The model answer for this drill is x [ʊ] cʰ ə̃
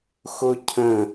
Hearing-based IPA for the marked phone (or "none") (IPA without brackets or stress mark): ʊ